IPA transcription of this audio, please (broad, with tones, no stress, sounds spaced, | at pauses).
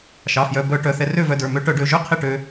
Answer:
ʃ ɑ˩˧˩ f j œ˩˧˩ b œ˧˩˧ ʈ œ˩˧˩ θ ɛ˧ r ø˥˨ v œ˧ d ə˞˩˧˩ m ø˧ ʈ œ˧˩˧ ɖ ø˩˧˩ ʒ ø˥˨ qʰ i˥˨ ʈ ø˧